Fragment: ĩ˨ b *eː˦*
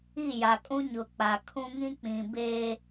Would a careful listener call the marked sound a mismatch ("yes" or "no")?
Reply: no